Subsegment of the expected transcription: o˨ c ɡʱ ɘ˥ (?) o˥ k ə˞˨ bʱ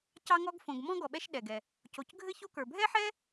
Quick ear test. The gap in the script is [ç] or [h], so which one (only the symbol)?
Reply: ç